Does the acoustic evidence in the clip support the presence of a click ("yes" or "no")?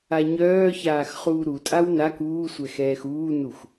no